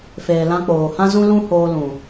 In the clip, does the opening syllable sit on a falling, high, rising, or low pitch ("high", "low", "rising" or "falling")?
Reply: low